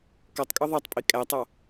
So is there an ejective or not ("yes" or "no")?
yes